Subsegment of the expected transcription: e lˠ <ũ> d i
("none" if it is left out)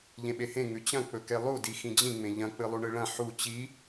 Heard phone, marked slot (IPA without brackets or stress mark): u